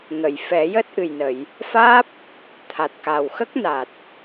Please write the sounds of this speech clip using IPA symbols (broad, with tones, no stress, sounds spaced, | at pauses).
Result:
ŋ ə˨˩˨ j f ɛ˨˩˦ j əː˦˥ t̚ ʔ ɨ˨˩ j n ə˨˩˨ j | f aː˦˥ p̚ | t̪ʰ a˨˩ t̚ k a˨˩ w x ə˦˥ k̚ n a˨˩ t̚